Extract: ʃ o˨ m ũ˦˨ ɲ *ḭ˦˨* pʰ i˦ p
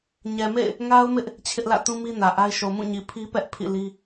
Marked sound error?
yes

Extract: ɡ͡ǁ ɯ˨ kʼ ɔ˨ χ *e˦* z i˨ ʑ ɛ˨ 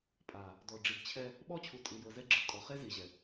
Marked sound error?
no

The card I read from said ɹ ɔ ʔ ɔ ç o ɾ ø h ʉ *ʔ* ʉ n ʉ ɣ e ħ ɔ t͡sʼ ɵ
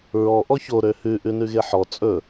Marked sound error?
no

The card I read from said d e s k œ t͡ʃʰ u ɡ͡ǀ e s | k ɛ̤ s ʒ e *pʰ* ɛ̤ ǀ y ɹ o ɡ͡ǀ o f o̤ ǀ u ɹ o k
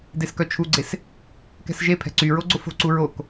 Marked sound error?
no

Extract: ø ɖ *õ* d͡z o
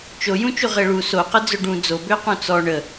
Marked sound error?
yes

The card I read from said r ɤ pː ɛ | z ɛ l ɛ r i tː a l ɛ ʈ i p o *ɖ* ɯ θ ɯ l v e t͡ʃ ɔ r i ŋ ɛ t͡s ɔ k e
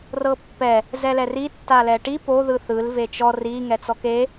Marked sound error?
yes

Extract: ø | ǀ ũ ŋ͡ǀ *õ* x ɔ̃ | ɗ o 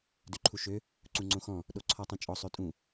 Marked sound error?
no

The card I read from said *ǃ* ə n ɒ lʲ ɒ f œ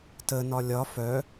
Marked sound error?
yes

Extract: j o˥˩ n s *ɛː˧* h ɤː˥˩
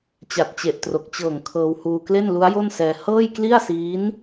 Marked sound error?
no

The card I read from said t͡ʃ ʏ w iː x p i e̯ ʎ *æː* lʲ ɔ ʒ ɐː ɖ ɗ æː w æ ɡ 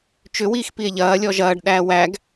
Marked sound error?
yes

